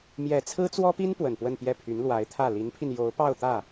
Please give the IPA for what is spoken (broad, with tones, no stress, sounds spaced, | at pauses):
m j ɛ˨˩ t͡sʰ ɹ̩˥ t͡s w ɔ˥ p i˥ n p w ə˨˩ n p w ə˥˧ n p j ɛ˥˩ pʰ y˧˥ n l w a˧˥ ɪ̯ t̪ʰ ä˥˩ l i˧˥ n pʰ i˧ n j o˧˥ ʊ̯ p ɑ˥˧ ʊ̯ t̪ ä˥˩